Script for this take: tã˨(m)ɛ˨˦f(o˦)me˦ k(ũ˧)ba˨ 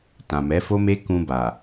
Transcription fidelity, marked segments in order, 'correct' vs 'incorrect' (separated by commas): correct, correct, correct